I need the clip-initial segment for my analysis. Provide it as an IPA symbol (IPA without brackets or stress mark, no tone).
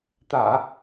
t̪